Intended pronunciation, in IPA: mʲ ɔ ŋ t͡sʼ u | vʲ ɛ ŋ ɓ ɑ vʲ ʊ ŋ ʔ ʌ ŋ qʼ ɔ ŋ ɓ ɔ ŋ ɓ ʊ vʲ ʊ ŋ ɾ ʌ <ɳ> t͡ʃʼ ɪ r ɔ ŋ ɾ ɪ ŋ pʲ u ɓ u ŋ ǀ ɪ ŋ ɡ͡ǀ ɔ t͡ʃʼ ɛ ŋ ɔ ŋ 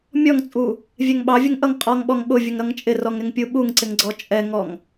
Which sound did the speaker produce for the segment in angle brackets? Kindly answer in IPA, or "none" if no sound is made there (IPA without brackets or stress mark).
ŋ